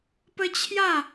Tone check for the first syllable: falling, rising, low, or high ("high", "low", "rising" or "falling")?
high